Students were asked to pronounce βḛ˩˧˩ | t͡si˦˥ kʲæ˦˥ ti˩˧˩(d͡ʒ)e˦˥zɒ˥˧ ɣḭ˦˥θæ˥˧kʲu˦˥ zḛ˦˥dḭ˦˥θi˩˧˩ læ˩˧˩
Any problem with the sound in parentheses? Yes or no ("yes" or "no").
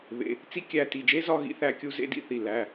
no